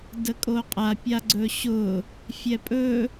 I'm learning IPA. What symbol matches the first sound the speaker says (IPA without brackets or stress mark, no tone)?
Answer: d